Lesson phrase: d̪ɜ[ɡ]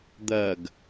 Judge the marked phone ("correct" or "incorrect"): correct